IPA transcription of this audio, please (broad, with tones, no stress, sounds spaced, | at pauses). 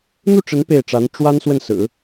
n̪ u˥˩ ʈ͡ʂ ə˧˥ n p e˥˩ ɪ̯ ʈ͡ʂ a˧˥ n ʈ͡ʂ w a˥ n s w ə˥˩ n s ɹ̩˨˩˦